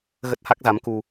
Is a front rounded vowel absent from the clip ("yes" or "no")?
yes